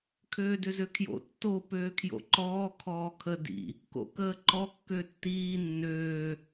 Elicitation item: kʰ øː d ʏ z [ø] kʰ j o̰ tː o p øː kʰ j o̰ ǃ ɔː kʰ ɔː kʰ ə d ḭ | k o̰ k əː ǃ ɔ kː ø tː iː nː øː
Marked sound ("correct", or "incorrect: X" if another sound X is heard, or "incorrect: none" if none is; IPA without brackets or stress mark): correct